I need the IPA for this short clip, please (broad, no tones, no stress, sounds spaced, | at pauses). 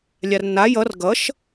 lʲ a r nː a j ʌ r ɡ ʌ ʃ